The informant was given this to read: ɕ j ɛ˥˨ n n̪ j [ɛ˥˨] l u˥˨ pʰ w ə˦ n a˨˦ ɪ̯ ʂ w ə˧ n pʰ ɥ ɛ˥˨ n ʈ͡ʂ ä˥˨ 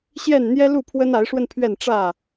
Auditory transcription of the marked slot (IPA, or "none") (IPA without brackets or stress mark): ɛ˦